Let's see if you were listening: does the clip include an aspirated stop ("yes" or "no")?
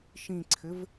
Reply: yes